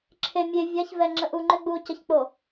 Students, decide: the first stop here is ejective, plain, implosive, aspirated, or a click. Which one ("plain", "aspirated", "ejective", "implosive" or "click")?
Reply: click